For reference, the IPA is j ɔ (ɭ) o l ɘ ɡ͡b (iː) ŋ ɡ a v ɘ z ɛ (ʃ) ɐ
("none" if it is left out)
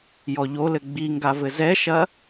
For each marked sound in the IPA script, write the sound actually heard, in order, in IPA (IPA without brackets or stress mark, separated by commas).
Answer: ʎ, i, ʃ